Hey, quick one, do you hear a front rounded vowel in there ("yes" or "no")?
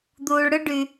yes